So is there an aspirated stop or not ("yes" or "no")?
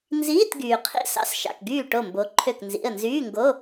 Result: yes